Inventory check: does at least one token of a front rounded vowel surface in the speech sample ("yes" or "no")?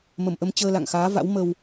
no